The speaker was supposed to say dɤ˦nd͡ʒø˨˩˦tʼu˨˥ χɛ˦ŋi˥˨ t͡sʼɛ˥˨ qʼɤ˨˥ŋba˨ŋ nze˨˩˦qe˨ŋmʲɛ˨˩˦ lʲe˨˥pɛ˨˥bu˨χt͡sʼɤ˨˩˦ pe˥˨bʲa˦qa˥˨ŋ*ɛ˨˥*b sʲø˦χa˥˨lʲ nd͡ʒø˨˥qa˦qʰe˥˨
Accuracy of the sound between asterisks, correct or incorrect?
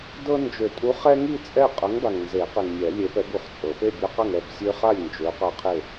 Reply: incorrect: ɛ˥˨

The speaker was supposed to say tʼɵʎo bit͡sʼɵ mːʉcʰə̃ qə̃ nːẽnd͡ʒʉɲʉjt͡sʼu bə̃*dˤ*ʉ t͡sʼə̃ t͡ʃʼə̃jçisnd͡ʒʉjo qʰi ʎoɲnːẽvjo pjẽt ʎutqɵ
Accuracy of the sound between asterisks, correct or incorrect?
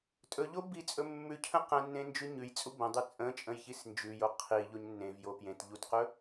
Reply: correct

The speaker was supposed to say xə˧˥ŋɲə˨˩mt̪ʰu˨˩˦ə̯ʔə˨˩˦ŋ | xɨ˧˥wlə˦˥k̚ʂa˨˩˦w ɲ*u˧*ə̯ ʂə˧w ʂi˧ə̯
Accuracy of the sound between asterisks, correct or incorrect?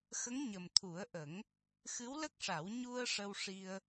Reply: correct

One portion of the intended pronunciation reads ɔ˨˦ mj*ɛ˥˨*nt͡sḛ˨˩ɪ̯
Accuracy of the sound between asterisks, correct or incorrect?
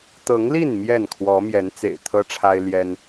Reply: incorrect: ɛ˨˦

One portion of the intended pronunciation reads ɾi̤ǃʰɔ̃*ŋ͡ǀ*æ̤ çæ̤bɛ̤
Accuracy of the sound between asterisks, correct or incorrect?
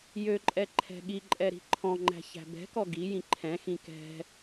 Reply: incorrect: ŋ͡ǃ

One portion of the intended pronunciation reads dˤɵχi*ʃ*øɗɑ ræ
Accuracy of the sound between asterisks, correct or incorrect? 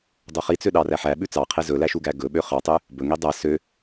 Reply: incorrect: t͡s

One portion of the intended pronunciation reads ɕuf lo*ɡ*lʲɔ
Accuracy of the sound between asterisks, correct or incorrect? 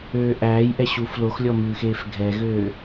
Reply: incorrect: x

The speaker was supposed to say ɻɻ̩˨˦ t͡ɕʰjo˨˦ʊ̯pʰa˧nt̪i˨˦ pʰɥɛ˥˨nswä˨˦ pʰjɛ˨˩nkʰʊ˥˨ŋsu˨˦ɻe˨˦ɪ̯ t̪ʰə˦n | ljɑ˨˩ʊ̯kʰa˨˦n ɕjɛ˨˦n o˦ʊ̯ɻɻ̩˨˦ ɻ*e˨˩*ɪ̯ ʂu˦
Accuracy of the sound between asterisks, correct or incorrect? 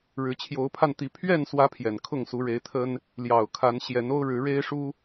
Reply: incorrect: e˦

